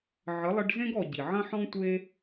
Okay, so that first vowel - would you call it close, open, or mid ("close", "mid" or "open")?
mid